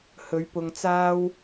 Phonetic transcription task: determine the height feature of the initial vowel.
mid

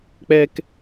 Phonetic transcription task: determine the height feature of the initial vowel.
mid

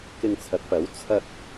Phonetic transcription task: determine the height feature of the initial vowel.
high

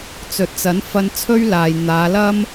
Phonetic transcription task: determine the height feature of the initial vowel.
mid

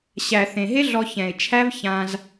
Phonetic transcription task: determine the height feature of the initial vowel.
low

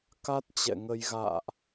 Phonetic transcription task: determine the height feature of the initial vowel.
low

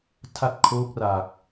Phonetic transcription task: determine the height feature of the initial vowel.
low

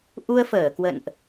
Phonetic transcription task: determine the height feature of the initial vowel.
high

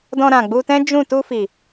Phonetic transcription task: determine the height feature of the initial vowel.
mid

